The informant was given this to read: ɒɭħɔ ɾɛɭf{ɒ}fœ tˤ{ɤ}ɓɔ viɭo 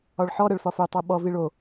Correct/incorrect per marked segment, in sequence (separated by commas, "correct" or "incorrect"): correct, correct